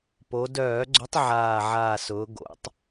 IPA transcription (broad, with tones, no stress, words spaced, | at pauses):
po˩˧dœː˧˩˧ɡ͡ǀʊ˨˥tˤ ʕaː˨˩ʕaː˨˩sʊː˩˧ ɡo̰˩˧tˤ